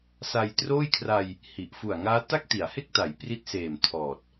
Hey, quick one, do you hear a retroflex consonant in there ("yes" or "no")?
no